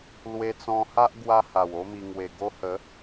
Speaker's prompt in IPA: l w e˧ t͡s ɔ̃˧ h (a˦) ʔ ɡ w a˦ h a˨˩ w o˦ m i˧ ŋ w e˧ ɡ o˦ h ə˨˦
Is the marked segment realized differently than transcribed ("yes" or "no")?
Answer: no